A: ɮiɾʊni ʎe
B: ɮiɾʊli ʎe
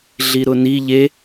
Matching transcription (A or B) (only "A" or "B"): A